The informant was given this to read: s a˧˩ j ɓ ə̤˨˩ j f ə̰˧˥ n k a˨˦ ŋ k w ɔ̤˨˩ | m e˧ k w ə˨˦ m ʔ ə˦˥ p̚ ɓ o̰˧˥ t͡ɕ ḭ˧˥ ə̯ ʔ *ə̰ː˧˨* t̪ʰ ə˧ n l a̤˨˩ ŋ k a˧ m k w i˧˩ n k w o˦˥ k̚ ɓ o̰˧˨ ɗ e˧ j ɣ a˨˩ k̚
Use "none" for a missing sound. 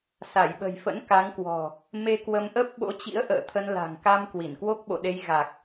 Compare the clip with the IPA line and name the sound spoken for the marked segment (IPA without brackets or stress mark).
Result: ə̰ː˧˨